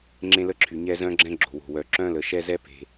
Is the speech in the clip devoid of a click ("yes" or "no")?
no